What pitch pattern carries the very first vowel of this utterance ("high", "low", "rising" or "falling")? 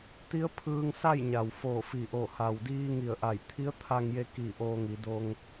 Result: rising